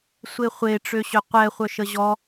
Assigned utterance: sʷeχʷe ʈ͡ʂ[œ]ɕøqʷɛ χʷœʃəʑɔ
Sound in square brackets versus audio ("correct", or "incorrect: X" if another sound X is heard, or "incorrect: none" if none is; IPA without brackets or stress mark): incorrect: ø